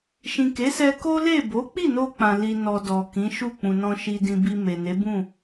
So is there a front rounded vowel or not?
no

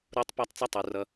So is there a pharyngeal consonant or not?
no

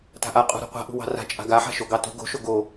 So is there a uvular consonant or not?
yes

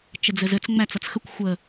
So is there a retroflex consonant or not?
no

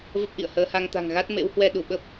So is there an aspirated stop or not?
no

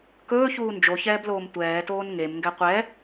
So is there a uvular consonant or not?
yes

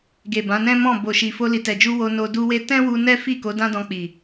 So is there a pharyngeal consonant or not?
no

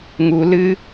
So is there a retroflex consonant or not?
no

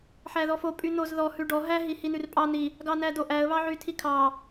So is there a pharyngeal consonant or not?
yes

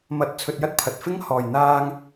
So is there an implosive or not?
no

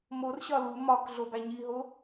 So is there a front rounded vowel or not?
no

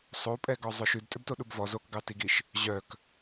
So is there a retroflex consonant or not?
no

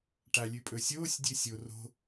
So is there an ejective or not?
yes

